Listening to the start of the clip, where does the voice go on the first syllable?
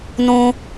high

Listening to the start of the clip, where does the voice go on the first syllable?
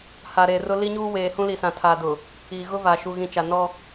low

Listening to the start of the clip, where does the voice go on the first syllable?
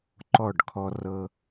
falling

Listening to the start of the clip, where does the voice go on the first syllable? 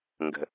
low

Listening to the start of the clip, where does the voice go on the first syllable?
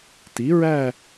rising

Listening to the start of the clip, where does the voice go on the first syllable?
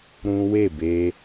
high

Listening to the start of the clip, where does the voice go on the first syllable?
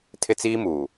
high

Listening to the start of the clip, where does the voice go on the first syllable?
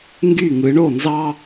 falling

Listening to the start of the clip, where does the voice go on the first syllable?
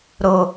low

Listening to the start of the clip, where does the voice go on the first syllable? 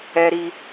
high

